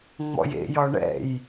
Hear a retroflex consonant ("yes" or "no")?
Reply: yes